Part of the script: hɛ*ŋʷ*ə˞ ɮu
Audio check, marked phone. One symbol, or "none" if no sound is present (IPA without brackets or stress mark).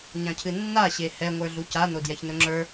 ŋʷ